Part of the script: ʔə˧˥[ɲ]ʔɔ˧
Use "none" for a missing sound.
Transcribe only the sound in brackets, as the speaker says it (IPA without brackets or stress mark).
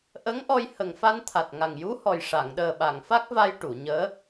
ŋ